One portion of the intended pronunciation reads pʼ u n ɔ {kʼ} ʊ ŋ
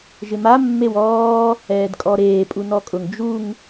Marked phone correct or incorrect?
correct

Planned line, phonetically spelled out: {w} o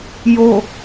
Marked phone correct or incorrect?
incorrect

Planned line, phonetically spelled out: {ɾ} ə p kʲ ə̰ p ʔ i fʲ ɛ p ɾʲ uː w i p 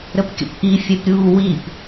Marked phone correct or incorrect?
correct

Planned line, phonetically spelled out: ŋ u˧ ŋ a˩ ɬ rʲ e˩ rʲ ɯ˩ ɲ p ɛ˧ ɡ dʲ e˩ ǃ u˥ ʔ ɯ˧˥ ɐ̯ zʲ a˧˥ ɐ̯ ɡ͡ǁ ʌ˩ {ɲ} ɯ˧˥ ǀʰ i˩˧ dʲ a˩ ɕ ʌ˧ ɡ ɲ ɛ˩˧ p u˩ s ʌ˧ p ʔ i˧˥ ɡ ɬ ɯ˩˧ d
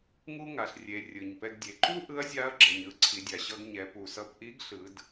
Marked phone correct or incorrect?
correct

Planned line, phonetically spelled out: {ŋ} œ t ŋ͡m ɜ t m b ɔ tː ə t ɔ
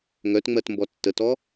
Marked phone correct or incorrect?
correct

